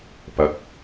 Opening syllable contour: rising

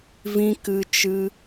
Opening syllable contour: high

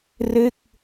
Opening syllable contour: falling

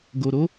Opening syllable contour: low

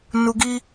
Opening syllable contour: high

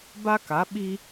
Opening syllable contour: high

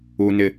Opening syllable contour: low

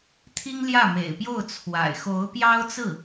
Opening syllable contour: high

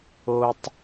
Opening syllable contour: high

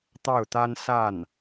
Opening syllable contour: falling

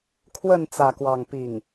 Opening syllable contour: falling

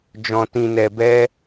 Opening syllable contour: low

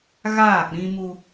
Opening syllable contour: falling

